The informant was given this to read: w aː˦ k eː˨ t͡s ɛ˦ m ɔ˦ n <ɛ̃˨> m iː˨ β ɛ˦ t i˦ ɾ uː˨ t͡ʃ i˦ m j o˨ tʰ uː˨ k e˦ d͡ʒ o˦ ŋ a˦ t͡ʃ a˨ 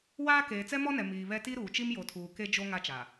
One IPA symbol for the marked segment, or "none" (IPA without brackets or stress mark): ɛ˨